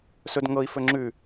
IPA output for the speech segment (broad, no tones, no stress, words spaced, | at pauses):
sɵd ŋɤi̯ fɵŋ͡ǁʉ